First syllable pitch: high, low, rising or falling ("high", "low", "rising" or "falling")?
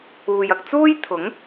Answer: low